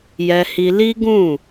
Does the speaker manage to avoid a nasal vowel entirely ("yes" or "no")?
no